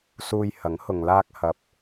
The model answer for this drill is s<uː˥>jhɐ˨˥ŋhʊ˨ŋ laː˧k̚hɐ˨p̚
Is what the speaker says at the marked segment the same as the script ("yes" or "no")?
no